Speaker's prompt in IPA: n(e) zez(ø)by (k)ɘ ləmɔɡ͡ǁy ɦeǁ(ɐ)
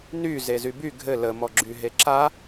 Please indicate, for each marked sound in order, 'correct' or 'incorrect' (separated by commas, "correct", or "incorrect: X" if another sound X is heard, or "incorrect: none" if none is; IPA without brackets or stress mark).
incorrect: y, incorrect: y, incorrect: ɡʱ, incorrect: a